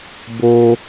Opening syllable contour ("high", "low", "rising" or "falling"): high